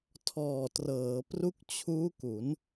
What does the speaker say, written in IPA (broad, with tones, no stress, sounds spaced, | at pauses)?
tʰ ɔː˨˩ t r ɤː˩˦ p r u˦˥ k̚ t͡ɕʰ uː˦˥ k u˩˦ n